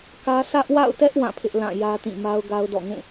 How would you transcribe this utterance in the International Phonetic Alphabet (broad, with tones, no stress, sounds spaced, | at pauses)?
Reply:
k ä˦ sʰ ä˦ ʔ w a̰˦˨ ʊ̯ t ɛ˦ ʔ w ã˦˨ pʰ ɪ˦ ʔ l ã˦˨ j ä˦ t ĩ˦˨ m a˦ ʊ̯ ɡ a˦ ʊ̯ d ɔ̰˦˨ ŋ ũ˦˨